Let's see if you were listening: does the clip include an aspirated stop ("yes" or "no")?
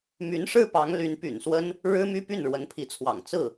yes